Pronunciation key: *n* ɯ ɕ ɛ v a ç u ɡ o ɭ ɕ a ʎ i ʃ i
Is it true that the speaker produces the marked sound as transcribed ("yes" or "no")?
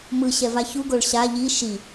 no